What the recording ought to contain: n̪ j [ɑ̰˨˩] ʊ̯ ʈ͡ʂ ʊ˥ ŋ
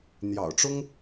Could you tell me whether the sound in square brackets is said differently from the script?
no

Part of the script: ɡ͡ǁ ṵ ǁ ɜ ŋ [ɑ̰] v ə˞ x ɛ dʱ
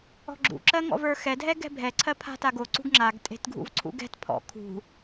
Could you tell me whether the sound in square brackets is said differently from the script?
yes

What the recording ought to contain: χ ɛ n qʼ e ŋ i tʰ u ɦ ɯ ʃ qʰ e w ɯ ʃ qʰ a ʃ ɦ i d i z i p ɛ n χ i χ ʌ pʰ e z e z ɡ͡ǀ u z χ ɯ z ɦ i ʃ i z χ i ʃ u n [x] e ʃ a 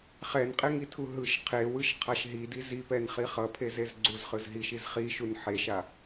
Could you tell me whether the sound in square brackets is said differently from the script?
yes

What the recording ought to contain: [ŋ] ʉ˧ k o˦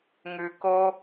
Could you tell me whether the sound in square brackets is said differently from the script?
no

